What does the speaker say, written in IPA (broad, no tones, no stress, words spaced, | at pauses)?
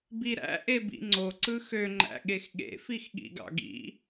biɾæ̰ ʔebḭŋ͡ǀo ǀɯxø ŋ͡ǃæ̰ɠexɠḛ fixɠḭɡɑ̰ɡḭ